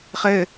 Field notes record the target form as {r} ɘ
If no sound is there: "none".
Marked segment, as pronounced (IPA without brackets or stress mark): χ